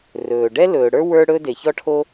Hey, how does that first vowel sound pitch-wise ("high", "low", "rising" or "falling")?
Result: low